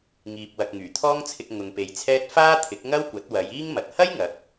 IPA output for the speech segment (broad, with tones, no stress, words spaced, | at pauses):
ŋiː˨p̚wɐ˨k̚ ŋyː˨˩t̪ʰɔː˥ŋt͡sʰɪ˧k̚ ŋʊ˨ŋpe˨jt͡sʰɛː˥t̚ faː˥t̪ʰɪ˨˥k̚ŋɐ˥wkʷɐ˨˥t̚ wɐ˨˧jiː˥ŋmɐ˨t̚ hɐ˥jŋɐ˨˥k̚